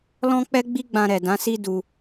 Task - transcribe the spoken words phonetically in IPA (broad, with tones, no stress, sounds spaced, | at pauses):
l ɔ̃˦ k͡p ɛ˦ ɡ͡b i˦ ɡ͡b ã˧ ɾ ɛ˨ d ã˨˦ s i˦ d u˧